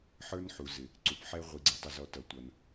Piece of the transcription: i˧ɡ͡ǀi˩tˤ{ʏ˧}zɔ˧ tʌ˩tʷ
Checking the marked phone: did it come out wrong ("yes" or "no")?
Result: yes